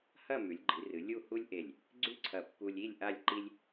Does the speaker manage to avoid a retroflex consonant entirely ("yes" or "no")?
yes